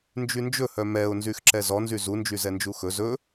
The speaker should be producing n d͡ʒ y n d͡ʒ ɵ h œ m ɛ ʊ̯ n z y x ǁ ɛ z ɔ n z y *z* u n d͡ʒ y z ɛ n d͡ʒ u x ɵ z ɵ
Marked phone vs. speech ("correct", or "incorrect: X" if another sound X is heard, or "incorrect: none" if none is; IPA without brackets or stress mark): correct